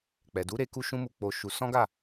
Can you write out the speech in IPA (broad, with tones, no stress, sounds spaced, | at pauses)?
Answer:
k͡p ɛ˨ d u˨˦ ɾ e˧ k u˦ ʃ ũ˦ m u˧ k͡p o˧ ʃ u˧ s ɔ̃˦ ɡ a˦˨